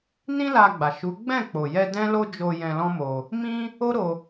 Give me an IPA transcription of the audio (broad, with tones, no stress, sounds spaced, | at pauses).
n ĩ˦ l a˧ ɡ͡b a˨ ʃ u˨˦ ɡ͡b ɛ̃˦˨ k͡p o˨ j ɛ˧ d ɛ̃˦ l o˦ d͡ʒ o˧ j ɛ̃˧ l ɔ̃˦ m o˧ | m ĩ˦ | o˦ ɾ o˧